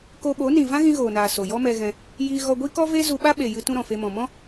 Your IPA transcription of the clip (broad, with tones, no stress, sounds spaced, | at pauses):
k o˧ ɓ o˨˦ n ĩ˨ v ã˦ ɣ ĩ˧ ɣ oː˨ n aː˨ s o˨ j ɔ˦ m ɛ˧ ɣ ɛ̃˧ | j iː˧ ɣ ɔ˧ ɡʷ i˦ k ɔ˦ v e˦ z u˧ ɓ a˦ ɓ e˨ j ɨ˧ t ũ˦ ɾ ɔ̃˨ f e˧ m ɔ̃˨ m ɔ̃˦